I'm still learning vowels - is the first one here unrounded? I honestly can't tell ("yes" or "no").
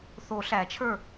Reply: no